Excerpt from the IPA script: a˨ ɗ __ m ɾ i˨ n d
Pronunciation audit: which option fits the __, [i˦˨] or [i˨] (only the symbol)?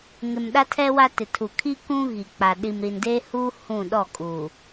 i˨